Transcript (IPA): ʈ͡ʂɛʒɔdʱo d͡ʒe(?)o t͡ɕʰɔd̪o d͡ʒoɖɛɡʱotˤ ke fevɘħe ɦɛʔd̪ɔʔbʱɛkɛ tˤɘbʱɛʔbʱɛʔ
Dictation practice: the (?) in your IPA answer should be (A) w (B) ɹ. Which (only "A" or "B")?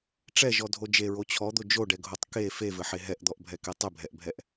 B